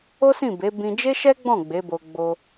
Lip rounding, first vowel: rounded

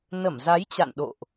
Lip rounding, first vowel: unrounded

